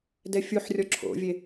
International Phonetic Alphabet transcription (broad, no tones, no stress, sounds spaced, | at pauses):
d ɛ fʲ u ħ rʲ ɔ ǁʰ o̰ vʲ e